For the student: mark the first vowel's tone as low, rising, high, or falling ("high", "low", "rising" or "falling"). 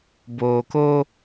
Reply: low